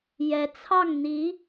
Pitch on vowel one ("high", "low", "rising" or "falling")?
rising